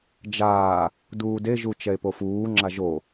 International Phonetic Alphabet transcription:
d͡ʒaː | duːdeʒu t͡ʃɛe̯pofuːŋ͡ǁa ʒo

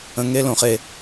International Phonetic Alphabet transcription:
ə̃˩ŋe˧ lõ˩χe˩

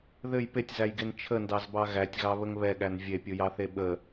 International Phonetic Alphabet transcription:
ðɘj petʲzæjɡen t͡ʃʰəndɑzbɑ ɣætʲɣɑβəŋ βɛɠæn vʲepʲɯjɑθe ɓə

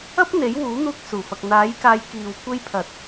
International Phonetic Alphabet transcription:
ɐ˥p̚n̪e˨˥jwuː˨˥ n̪uː˧k̚suː˨˩fɐ˨k̚ n̪aː˨˥jkaː˨˧jkiː˨w kʷe˧jpʰɐ˨˥t̚

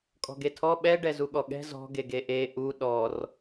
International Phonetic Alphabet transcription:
kʼɔ̤ɡetʰɔ ɓɛɖɛ zuɠɔɠɛ̤ zɔ̤ɡeɡe ʔe ʔu ɗɔr

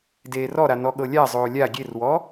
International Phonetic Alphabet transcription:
deːrɔɾa nɔɠɤlʲazˤoː lʲa ɡʲerwɔ

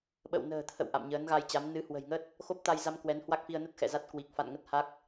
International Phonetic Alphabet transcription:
ɓə̰˧˨wnə̤ː˨˩ t̪ʰə̰˧˨w ʔa̰˧˨mɲəː˨˦nɣa˧jt͡ɕa˨˦m nɨ˨˦hwə̤˨˩jŋə˦˥t̚ | xo˦˥p̚t̪a˧jza˧m kwɛ˨˦nhwa˦˥k̚fi˧ə̯nə˦˥t̚ xɛ̰˧˨za˦˥t̚kwi˨˩k̚ fa̰˧˨nŋə˦˥t̚ha˦˥k̚

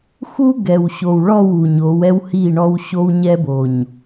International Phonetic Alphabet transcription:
xu˦ ɡɛ˨wɕo˨wɭɔ˦˨w u˨ɲo˨˦w ɛ˦whi˦˨ɳɔ˦w ɕo˦wɲɛ˦bo˨ɲ

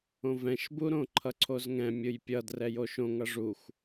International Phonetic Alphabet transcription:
õvɛ̃ʃbuɾõ ǃʰʌǀʰozŋɛ̃ mʲɯjpʲʌ drɛjoʃõŋʌ ʐuxʷ

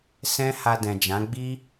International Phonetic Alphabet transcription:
sɛ̃˦ ha˧dɛ̃˨d͡ʒã˨˦ ɡ͡bi˦

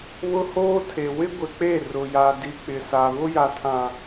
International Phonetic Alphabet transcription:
βʊ˦hoː˦ tʰe˨ wɪ˦ɡʷɪ˨k͡pe˦˨ rʊ˨ja˨di˨ k͡pɪ˨sa˨ βʊ˦ja˨tʰã˨

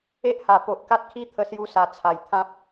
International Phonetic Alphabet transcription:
e˦ʔha˨˩ po˨ʔka˦t̚kʰi˥˧ t̪ʰə˧sju˧sa˨˩ t͡sʰa˨˩j t̪ʰã˦p̚

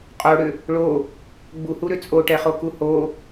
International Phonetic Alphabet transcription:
qʼoɽʏ | ɭo | ɡ͡buhuɾʏ t͡sʼoʈɛχoku ho

